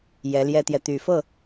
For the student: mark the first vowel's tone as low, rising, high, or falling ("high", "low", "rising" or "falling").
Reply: rising